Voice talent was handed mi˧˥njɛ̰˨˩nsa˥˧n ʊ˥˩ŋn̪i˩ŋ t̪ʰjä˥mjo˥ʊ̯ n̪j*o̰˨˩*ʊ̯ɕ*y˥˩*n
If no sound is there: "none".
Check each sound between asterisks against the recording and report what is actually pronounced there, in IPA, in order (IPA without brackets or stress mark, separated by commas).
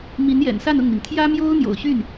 o̰˨˩, y˥˩